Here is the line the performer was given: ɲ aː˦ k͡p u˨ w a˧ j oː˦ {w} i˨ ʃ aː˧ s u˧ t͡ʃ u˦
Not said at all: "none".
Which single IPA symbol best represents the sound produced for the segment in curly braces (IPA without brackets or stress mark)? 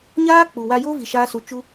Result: v